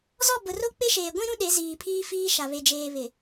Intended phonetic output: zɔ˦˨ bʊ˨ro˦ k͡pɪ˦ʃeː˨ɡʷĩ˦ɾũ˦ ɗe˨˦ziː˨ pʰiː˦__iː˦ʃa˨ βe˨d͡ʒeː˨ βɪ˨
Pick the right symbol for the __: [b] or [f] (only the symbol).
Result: f